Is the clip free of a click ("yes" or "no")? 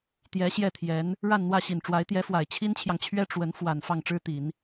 yes